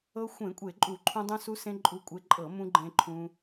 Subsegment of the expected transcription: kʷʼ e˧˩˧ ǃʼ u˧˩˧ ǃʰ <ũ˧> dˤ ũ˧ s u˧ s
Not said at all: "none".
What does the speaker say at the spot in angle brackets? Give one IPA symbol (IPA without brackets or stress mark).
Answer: ũ˧